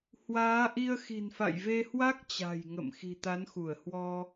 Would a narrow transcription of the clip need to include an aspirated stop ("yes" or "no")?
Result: no